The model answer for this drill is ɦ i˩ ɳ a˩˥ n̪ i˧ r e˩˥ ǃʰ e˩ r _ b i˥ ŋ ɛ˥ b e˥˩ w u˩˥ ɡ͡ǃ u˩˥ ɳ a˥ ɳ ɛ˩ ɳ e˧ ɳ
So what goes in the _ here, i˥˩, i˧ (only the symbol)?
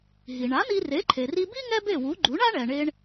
i˧